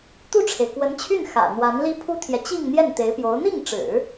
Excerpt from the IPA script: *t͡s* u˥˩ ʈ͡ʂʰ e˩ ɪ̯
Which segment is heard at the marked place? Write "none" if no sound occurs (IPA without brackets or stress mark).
t̪